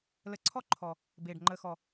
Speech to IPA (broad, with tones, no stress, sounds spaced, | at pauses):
l ə˧ ǀʰ ɔ˥ ǃʰ ɔ˨˩ | b eː˨˩ ɖ ŋ͡ǃ əː˧ x ɔ˨˩